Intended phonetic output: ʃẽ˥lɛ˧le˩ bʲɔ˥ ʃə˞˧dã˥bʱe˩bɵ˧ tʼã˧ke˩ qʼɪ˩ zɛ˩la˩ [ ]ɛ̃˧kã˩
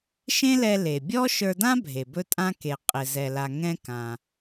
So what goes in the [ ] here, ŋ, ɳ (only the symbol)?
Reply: ŋ